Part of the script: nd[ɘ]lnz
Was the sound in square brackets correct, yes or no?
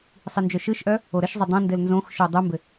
yes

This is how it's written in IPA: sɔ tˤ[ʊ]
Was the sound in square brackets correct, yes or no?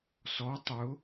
yes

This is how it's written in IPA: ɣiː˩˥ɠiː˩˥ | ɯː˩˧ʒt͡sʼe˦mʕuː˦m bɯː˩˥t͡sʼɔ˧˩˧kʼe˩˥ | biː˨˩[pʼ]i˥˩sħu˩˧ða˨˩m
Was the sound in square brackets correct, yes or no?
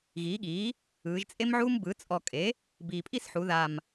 yes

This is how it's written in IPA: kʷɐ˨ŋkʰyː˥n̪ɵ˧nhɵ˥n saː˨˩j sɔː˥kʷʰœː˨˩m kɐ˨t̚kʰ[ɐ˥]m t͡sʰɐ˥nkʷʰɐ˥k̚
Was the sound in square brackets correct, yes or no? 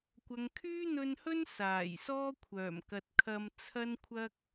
no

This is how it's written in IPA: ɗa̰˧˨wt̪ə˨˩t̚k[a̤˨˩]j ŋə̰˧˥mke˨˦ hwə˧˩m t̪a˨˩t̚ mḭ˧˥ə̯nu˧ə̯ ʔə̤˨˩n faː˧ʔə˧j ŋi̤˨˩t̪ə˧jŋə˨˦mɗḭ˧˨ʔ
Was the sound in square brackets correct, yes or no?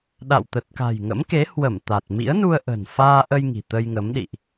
yes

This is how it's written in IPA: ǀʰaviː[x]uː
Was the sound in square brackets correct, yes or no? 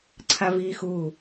yes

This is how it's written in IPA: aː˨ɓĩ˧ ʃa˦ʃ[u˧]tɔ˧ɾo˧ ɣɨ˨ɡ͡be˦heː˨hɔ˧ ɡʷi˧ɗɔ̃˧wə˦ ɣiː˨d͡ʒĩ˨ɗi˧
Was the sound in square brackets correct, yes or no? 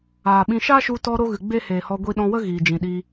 yes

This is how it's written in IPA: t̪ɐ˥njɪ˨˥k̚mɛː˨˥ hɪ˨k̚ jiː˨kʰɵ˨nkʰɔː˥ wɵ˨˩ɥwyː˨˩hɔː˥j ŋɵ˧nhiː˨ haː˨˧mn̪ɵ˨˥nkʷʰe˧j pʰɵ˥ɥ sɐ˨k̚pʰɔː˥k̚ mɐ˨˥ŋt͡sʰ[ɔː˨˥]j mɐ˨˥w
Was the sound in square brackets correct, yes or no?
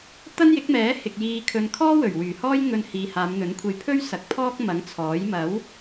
yes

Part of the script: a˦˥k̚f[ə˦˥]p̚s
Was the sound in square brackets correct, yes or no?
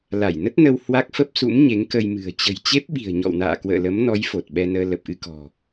yes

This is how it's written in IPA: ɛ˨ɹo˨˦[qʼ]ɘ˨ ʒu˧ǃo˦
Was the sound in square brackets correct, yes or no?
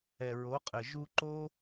yes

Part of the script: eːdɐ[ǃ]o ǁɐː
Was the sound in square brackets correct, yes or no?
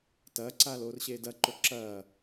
yes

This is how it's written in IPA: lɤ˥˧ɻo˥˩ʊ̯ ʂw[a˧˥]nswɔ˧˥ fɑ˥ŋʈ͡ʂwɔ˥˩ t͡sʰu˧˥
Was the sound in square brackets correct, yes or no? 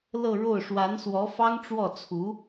yes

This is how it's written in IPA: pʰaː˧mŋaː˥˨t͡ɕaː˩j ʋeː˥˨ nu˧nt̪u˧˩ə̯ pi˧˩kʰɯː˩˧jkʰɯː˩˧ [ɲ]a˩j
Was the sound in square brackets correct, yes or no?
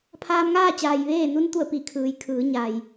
yes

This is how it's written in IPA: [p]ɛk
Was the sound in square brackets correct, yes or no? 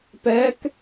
yes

